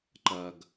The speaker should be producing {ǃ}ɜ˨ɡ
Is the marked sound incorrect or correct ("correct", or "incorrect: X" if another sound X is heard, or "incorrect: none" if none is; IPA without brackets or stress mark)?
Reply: correct